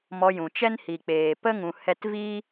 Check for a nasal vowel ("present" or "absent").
present